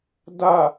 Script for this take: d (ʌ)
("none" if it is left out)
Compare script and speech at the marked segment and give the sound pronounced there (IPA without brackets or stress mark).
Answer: a